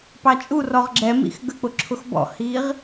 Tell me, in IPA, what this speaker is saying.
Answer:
p ɑ t͡ʃʼ u r ɔ ʁ ɡ͡ǁ ɛ m ḭ x ɡ ə k͡p ʊ ǁʰ ʊ x b ɔ̰ h iː ʁ

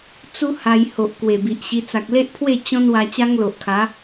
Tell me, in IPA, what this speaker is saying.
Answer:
t͡s u˦ h a˧ j h o˨ ʔ k w e˨˩ b i˨ ʔ ɕ i˧ t͡s a˨ k̚ l e˦ ʔ pʰ w e˥˧ t͡ɕ ɔ̃˦ n w a˧ t͡ɕ a˦ ŋ l o˨ ʔ kʰ a˨˦

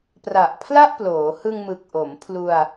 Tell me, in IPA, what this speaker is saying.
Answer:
p r a˨˩ ʔ pʰ l a˥˩ ʔ p l oː˩˦ h ɯ˧ ŋ m ɯ˨˩ k̚ ʔ o˩˦ m pʰ l u˧ a̯

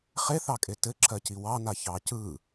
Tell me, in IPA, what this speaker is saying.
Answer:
χ e θ ɑ kʼ e t ɘ ǁʰ ɜ c i w ɑ n a ç ɑ c ɯ

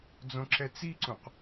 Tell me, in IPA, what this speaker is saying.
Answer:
d͡z õ ǁ ɛ t͡s i ǀ ũ q

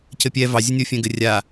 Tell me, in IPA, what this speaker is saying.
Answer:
c ɘ pʲ ɛ v ɑ zʲ ɘ nʲ o fʲ ɛ̃ ɡ ɘ rʲ a

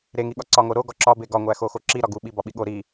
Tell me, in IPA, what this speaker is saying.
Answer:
ɾ e ŋ i ɠ ɒ ǀ ɒ ŋ o ɾ o ɡ ɒ ǁ ɒ b e ɡ ɒ ŋʷ æ x o x o ǁ i ɾ ɒ ɡ u ɓ i b ɒ ɓ i ɠ o ɾ i

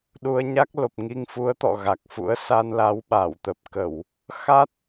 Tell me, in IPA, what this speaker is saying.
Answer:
ɗ u˧ ə̯ ɲ a˦˥ k̚ l o˨˩ p̚ ŋ i˧ ŋ f u˨˦ ə̯ t̪ ɔ̰˧˨ ɣ a˨˩ k̚ f ṵ˧˥ ə̯ s a˧ n l a˨˦ w ɓ a˧˩ w t̪ ə˨˩ p̚ k ə˧˩˨ w | x a˦˥ t̚

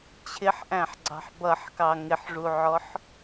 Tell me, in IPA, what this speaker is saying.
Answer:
t͡ɕʰ ɪ ħ ʔ æ̃ ħ ɡ͡ǀ ɑ̤ ħ b ʌ ħ k ɑ ŋ ɪ ħ ʐ u ʕ ɔ ħ

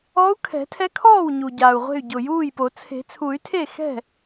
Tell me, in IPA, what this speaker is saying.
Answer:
ɔ˧˥ u̯ kʰ ɛ̤˨˩˦ tʰ ɛ˧˥ kʰ ɔː˥˩ w ɲ u˨˩ ɟ aː˨˩ u̯ ʁʷ e̤˥˩ y̯ ɟ ʊ˨˩ j uː˥˩ j p o˨˩˦ t͡sʰ e̤˨˩˦ t͡sʰ u˨˩˦ y̯ tʰ e˥˩ x ɛ̤˥˩

